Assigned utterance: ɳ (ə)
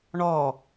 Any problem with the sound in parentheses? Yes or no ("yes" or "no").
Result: yes